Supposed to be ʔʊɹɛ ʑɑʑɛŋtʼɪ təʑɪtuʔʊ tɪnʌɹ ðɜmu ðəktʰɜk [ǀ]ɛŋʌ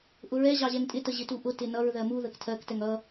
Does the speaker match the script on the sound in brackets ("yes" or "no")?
no